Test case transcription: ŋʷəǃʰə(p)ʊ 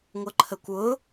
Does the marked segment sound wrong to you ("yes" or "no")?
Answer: yes